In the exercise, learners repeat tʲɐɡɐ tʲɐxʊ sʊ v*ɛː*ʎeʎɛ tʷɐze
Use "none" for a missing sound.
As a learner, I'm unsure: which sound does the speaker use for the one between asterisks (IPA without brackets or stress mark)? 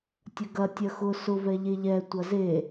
ɛ